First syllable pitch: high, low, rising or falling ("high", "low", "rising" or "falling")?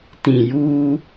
low